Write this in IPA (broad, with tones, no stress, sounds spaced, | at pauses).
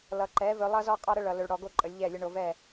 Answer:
l ʌ˨ ǃ ɛ˨˦ v ɵ˧ lˠ ʌ˦ z ɔ˦ qʼ ɔ˦ ɾ ə˦ ɭ ʌ˨ l ɵ˧ ɭ ɽ ɔ˧ ɡ o˦ ǃʼ ə˨˦ lʲ ʎ ɛ˦˨ lʲ ə˦ ɳ o˧ v ɛ˦˨